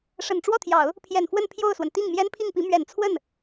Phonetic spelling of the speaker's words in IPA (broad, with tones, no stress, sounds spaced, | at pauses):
ʂ ə˨˩ n ʈ͡ʂ w ɔ˥˩ t̪ʰ j ɑ˨˩˦ ʊ̯ | pʰ j ɛ˨˩ n f w ə˥˧ n pʰ j o˥˩ ʊ̯ s w ə˩ n t̪ i˥˩ ŋ m j ɛ˥ n pʰ i˥˩ ŋ p i˧˥ m ɥ ɛ˨˩ n t͡sʰ w ə˥˩ n